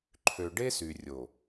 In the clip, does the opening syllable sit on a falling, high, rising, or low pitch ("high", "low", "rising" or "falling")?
low